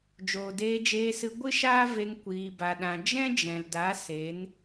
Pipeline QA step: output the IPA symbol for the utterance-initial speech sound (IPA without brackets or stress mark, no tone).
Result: d͡ʒ